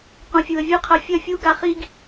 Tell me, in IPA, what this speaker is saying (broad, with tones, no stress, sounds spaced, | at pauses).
q ũ˨ fʲ u˨ ə̯ vʲ ɯ˧ qʰ ɐ˧ fʲ ɐ˦˨ fʲ u˦ ɡ a˧ χ i˦ ɡ